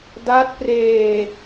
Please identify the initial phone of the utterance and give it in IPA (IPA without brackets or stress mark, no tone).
d